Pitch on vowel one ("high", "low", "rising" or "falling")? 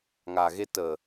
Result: low